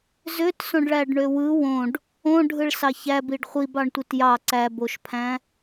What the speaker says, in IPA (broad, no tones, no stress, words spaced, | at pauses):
zøtsõɖɭæɖɳø wɯ wõɖ | õɖʱɯɭsɑ çæbiɖ χʷibɑɳtʷit jɑ ǀæboʃpʰæ̃